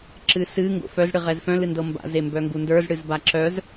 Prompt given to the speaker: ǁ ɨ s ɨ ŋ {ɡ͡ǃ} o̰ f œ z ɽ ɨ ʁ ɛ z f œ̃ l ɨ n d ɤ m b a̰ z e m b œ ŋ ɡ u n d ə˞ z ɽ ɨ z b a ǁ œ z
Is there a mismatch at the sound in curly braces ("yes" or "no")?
yes